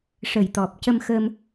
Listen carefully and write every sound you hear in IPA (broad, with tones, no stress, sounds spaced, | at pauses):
ʂ ə˨˩ j t̪ ɔ˨˩ p̚ c ə˧ m x ə˧ m